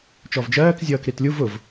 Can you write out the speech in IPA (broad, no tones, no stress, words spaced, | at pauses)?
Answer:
t͡ʃɔvd͡ʒɜːk zʲʌːkɾitlʲuv ʊv